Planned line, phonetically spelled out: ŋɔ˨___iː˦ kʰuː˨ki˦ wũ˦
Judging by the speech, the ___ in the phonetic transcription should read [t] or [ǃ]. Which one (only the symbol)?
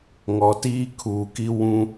t